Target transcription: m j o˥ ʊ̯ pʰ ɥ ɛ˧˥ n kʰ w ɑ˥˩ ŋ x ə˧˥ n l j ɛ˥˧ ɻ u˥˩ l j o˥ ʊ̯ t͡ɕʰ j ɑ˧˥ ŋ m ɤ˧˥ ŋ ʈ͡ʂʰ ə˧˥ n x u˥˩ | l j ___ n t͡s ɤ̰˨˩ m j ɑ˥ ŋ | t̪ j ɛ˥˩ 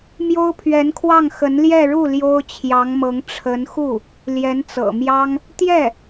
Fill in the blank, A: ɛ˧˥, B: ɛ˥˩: A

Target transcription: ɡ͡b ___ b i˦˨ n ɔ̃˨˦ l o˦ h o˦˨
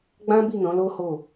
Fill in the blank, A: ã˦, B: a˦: A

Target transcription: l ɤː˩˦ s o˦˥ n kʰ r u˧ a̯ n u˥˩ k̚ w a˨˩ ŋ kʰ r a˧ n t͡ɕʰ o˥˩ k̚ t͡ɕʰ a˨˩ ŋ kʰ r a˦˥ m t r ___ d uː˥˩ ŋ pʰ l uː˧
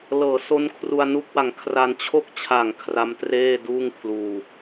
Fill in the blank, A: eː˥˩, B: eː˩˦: A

